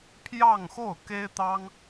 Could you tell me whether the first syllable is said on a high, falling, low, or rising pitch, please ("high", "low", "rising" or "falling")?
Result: falling